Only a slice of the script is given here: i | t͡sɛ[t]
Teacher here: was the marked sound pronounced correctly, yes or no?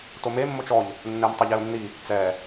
no